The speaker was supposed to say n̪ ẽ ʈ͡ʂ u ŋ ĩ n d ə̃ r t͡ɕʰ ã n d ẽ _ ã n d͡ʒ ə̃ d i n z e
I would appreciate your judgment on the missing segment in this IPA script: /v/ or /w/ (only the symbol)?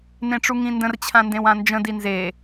w